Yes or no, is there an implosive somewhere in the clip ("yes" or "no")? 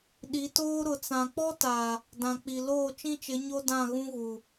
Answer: yes